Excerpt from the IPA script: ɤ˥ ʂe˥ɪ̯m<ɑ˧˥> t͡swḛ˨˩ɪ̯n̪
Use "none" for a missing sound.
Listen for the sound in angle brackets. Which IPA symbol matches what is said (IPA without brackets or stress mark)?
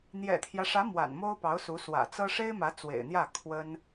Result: ä˧˥